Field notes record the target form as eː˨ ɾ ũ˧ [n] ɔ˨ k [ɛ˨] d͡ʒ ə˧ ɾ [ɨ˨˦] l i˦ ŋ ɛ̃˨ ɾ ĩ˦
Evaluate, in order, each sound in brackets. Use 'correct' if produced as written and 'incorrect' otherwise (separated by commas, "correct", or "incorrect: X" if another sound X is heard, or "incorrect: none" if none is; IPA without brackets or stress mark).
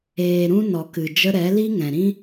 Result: correct, incorrect: ɨ˨, incorrect: ɛ˨˦